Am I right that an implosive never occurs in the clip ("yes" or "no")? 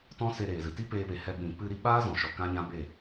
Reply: no